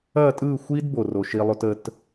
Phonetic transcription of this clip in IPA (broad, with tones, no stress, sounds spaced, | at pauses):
ɐ˦˨ tʼ ɯ˦˨ xʷ i˦ d b o˨ r o˨ ʃ i˧ lˠ o˦ t ə˦ t